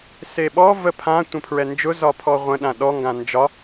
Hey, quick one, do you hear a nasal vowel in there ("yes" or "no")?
yes